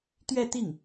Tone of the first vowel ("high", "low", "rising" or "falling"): falling